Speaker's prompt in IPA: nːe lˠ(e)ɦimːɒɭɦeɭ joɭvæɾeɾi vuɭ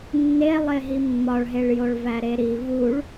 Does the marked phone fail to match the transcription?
no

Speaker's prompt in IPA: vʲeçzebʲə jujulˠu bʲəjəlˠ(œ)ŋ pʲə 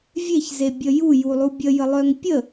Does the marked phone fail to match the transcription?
no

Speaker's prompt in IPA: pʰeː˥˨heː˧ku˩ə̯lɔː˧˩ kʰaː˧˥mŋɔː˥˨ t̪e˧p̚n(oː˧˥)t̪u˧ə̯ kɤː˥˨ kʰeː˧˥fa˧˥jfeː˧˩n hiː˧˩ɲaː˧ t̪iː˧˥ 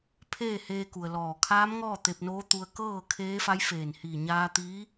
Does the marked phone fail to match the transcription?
no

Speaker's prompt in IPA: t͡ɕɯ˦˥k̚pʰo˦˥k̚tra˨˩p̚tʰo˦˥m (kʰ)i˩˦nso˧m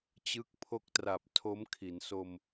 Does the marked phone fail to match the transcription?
no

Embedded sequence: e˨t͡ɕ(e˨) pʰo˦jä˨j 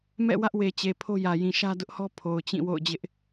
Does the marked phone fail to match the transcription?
no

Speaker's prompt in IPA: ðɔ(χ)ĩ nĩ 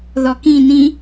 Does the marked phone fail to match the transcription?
yes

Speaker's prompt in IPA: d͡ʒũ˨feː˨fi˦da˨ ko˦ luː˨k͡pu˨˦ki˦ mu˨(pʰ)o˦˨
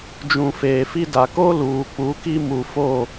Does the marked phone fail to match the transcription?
yes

